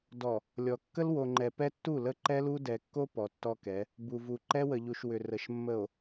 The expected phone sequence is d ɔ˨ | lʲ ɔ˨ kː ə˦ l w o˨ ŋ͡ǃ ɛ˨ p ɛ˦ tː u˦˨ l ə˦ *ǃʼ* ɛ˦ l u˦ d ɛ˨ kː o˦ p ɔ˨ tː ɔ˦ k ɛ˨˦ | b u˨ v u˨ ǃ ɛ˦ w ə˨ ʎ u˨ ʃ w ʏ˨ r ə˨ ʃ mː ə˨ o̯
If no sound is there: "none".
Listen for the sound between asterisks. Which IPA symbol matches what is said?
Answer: ǃ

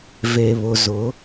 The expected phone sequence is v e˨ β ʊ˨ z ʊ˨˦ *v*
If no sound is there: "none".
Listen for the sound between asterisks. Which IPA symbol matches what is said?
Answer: none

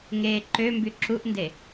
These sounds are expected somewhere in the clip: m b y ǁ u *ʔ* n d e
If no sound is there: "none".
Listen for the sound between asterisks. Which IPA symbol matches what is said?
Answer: ʔ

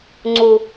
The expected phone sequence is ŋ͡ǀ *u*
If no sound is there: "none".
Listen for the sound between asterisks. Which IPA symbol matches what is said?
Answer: u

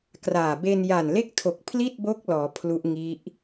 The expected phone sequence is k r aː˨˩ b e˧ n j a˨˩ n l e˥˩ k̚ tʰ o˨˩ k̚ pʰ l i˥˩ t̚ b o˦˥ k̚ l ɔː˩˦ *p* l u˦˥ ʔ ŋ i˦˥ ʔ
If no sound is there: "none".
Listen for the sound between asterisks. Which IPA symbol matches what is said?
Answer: pʰ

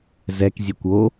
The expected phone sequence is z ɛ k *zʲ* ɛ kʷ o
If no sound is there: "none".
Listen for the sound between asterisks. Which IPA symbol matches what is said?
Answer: zʲ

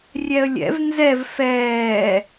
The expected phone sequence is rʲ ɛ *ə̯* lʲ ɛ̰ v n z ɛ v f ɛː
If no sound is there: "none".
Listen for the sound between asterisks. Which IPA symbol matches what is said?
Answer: ə̯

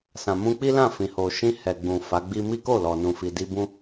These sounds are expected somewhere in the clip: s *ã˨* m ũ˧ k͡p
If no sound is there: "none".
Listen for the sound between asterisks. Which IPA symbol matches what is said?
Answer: ã˨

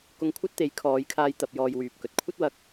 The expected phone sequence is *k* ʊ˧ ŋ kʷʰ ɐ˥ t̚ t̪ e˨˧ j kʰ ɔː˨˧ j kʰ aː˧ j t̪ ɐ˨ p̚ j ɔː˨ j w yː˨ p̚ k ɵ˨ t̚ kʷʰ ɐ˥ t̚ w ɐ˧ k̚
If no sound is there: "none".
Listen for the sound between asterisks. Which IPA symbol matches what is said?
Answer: k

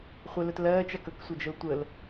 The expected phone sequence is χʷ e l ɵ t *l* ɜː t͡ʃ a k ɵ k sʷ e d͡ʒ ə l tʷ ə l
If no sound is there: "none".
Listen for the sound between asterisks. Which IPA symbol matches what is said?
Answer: l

